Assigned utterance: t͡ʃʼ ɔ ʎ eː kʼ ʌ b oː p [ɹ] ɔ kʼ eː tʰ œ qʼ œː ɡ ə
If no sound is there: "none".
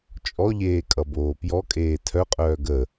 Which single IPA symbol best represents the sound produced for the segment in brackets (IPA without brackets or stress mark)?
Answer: j